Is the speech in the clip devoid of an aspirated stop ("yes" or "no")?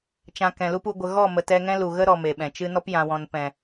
yes